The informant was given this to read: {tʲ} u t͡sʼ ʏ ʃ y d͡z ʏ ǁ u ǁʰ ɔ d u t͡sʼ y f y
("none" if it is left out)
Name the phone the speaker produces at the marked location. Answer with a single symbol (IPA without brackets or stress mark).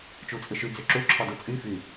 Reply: t͡ʃ